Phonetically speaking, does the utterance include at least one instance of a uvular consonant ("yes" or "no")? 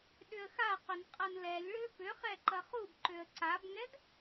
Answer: yes